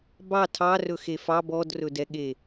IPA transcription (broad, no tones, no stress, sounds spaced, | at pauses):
b ɑ tʰ ɑ r ɵ x e f ɑ b ɔ d r ɵ d ɛ ɠ e